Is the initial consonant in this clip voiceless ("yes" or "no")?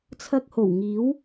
yes